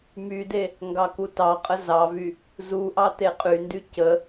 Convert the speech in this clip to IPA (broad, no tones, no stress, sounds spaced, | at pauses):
m y d e | ŋ ɡ ɑ k u t ɑ qʼ ə z ɑ v y | z u ʔ ɑ t e qʼ y n d y c ə